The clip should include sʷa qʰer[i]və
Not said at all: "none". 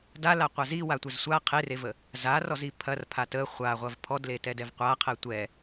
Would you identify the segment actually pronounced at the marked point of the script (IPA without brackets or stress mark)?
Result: e